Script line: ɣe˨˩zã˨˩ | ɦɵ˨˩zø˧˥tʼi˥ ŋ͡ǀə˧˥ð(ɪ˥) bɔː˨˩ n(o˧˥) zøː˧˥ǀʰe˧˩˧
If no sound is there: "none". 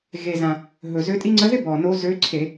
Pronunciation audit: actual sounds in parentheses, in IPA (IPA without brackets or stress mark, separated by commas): ɪ˥, o˧˥